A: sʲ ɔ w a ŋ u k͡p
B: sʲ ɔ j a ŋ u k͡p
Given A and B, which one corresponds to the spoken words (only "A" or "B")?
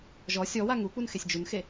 A